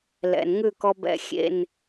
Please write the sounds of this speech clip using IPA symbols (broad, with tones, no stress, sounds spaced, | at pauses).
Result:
l ɛ̰˨ n ŋ ʉ˦˨ k ɔ˧ b ɛ̰˧ xʲ ḛ˦˨ n